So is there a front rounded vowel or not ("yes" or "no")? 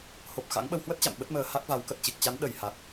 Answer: no